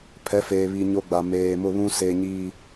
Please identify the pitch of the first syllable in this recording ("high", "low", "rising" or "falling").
rising